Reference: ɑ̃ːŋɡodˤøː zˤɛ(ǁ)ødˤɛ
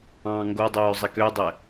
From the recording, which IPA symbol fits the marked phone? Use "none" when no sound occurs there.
k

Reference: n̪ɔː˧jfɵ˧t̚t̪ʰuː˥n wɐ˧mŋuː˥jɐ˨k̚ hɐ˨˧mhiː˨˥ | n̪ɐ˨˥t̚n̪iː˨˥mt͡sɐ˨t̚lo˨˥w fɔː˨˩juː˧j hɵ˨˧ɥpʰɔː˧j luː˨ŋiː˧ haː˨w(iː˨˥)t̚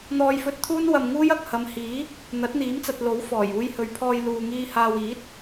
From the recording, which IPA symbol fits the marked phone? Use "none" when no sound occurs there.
iː˨˥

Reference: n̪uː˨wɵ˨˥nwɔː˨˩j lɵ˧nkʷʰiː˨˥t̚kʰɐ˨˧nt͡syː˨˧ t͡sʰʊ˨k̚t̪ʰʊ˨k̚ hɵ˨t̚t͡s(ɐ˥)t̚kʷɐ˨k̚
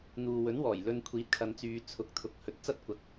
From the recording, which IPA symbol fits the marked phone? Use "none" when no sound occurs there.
ɐ˥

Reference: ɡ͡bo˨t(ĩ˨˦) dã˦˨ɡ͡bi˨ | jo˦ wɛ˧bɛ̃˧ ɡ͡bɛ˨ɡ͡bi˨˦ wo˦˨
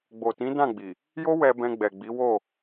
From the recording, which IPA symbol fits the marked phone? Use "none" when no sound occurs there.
ĩ˨˦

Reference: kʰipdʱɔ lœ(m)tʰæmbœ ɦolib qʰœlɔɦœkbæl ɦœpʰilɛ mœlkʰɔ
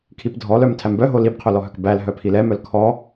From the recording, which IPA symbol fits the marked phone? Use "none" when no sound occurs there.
m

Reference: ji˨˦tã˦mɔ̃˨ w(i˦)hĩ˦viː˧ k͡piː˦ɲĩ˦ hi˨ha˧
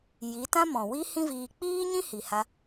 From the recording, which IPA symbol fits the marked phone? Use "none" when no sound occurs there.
i˦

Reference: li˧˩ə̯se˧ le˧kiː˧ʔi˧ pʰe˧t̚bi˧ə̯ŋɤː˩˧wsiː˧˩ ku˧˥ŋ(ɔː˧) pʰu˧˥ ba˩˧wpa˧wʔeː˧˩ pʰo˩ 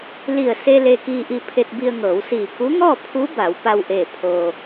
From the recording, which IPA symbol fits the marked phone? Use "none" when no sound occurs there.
ɔː˥˨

